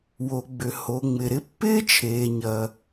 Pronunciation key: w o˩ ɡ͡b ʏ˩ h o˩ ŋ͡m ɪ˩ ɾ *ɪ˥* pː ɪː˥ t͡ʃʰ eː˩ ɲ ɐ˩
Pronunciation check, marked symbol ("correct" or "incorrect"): correct